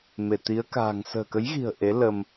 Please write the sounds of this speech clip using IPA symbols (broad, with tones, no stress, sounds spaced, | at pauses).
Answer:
m e˧˩ t̪ i˨˦ ə̯ k a̤ː˨˩ ŋ s ə̤ː˨˩ k ə˨˦ j ɣ i̤˨˩ ə̯ ʔ e˨˦ l ə˧ m